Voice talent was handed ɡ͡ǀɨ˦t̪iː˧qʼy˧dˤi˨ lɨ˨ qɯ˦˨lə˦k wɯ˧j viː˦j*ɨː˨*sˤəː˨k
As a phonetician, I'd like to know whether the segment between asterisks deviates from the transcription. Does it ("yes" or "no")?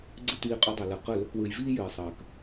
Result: no